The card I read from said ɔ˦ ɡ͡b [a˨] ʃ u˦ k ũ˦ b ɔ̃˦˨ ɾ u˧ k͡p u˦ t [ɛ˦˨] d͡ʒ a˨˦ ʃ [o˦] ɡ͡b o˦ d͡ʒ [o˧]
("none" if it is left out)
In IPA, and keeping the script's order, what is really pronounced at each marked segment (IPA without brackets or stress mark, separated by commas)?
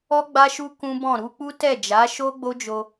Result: a˦, ɛ˦˨, o˦, o˧